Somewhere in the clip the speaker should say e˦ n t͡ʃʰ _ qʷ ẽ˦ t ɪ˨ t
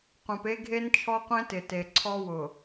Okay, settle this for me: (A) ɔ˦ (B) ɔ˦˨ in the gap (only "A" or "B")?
A